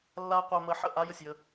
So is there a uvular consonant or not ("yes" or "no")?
yes